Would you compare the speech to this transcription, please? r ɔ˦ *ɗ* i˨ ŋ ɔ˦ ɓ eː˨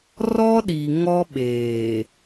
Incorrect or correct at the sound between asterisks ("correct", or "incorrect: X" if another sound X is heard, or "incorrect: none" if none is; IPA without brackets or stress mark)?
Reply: correct